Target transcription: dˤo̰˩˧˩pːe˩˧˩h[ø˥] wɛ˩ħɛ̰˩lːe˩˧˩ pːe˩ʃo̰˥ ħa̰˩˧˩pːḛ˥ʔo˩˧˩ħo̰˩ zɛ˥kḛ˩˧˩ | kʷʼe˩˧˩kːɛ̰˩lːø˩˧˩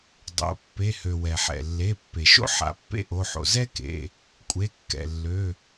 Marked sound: incorrect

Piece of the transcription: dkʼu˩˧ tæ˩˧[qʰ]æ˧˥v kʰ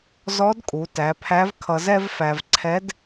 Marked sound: incorrect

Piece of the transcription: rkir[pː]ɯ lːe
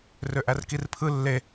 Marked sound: incorrect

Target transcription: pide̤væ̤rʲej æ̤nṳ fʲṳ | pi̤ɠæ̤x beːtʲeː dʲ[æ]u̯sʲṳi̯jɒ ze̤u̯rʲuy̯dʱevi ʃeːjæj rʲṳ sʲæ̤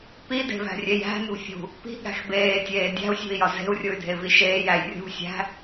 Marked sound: incorrect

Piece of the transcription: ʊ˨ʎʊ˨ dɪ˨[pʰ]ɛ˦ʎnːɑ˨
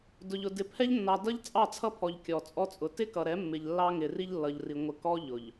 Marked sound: correct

